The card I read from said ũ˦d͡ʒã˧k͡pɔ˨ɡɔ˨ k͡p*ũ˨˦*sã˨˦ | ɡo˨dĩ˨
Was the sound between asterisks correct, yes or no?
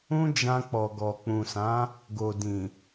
no